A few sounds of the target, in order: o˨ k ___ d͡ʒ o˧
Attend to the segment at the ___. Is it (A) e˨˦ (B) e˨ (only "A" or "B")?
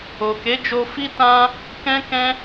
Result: A